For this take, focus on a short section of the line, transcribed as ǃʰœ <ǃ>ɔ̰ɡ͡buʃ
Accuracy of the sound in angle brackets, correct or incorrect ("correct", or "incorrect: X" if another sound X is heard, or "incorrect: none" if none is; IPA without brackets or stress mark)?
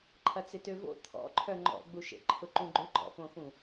incorrect: ŋ͡ǃ